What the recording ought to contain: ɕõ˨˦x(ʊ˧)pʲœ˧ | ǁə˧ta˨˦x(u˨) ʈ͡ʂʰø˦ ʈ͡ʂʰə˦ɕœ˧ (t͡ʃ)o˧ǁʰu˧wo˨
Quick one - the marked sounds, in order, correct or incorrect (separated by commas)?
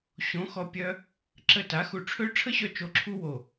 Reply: incorrect, incorrect, correct